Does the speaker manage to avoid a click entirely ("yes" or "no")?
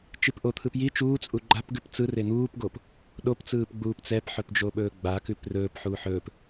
no